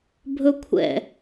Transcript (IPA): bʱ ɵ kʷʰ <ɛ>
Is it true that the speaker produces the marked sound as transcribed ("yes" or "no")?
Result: no